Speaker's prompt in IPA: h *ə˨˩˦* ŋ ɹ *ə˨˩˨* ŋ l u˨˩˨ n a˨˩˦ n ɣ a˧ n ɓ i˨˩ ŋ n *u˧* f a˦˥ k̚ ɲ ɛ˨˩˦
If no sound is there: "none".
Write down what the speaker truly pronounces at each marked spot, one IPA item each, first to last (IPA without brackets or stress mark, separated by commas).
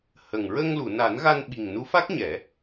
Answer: ə˨˩, ə˧, u˧˥